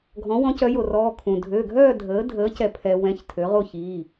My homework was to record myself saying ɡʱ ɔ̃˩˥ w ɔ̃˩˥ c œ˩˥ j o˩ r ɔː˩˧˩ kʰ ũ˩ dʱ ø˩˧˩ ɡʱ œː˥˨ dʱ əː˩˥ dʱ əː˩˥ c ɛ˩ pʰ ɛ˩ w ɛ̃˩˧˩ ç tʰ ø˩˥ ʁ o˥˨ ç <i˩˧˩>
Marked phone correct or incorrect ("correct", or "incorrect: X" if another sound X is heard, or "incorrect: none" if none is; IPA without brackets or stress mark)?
correct